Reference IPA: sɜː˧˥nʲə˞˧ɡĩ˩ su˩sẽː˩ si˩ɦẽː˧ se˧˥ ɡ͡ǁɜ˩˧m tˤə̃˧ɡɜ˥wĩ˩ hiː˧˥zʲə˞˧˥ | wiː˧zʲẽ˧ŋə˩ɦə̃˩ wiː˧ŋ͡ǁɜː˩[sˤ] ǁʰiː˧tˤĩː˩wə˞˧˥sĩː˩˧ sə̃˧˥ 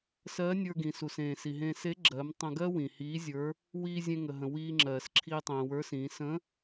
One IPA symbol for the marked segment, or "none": s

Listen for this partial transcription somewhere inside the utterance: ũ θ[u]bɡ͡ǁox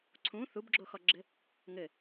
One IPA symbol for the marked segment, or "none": u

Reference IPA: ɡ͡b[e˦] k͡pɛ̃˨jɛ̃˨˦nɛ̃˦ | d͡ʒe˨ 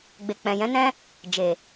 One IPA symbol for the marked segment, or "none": e˨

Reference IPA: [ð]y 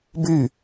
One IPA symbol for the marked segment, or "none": b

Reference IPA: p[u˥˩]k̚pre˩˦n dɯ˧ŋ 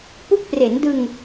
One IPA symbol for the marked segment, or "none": u˦˥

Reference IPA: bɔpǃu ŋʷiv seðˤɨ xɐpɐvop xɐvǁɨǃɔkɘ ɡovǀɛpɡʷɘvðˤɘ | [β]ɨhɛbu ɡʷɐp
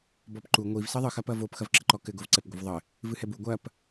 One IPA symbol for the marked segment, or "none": v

